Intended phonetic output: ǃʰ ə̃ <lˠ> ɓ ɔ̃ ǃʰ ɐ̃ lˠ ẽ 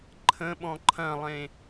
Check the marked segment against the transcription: incorrect: none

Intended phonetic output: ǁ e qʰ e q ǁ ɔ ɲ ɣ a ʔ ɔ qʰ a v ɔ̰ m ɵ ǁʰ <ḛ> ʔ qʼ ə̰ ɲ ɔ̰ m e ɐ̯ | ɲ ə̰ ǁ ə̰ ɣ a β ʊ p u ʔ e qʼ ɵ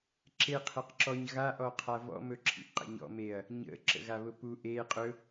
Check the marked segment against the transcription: incorrect: ḭ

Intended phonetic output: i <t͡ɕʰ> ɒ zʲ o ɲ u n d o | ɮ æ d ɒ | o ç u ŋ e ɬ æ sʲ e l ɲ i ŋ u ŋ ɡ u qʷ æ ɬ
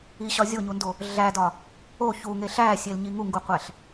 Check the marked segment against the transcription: incorrect: ɕ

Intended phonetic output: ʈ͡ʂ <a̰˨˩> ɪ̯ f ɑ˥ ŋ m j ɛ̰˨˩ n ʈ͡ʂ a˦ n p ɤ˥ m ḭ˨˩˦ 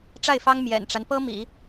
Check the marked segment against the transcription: incorrect: a˥˩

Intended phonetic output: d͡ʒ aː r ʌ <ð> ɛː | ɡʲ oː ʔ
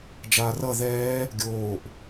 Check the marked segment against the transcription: correct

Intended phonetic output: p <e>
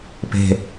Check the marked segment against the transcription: incorrect: e̤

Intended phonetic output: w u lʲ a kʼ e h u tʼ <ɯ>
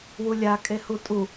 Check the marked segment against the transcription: incorrect: u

